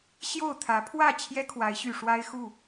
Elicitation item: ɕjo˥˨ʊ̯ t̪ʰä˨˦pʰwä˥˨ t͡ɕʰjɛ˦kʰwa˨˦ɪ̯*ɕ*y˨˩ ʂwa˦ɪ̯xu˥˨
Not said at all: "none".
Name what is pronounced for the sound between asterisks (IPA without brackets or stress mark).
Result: ɕ